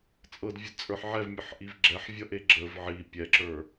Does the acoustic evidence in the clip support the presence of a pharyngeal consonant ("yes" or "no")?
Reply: yes